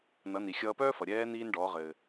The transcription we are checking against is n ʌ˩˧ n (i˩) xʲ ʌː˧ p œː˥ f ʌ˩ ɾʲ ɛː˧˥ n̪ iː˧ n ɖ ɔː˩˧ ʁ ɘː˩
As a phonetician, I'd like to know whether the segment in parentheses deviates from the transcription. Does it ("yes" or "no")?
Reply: no